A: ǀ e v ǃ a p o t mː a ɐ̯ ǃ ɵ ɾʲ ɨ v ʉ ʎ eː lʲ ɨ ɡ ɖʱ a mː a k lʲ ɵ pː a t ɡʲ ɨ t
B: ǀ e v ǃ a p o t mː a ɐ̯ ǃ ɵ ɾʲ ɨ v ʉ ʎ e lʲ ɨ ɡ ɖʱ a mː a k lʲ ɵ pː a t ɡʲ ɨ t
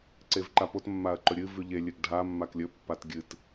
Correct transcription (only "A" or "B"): B